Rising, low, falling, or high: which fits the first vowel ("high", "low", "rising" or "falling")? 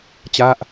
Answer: falling